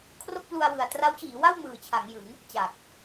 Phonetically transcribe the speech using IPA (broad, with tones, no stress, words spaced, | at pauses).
kʰro˥˩k̚plu˧a̯wɯ˨˩a̯ tra˦˥wt͡ɕiː˩˦wa˥˩w mɯː˨˩t͡ɕʰa˩˦ŋjɯ˩˦ŋ | t͡ɕa˨˩k̚